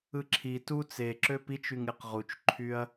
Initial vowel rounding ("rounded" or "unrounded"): unrounded